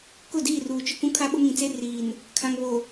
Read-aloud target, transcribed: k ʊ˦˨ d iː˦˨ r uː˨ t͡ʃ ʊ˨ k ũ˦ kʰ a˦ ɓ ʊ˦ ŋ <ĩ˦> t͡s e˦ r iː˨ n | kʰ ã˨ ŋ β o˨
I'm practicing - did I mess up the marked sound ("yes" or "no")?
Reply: yes